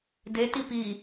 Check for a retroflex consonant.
absent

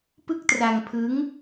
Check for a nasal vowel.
absent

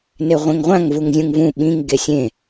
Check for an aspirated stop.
absent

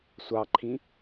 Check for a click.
present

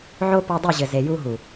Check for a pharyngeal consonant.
present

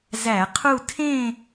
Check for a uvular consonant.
present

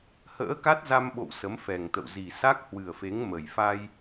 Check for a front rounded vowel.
absent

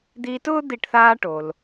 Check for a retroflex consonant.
present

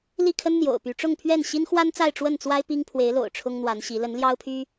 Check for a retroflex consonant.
present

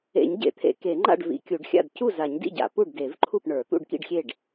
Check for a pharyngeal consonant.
absent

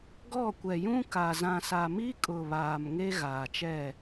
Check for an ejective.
present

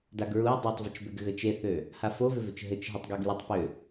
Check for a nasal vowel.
absent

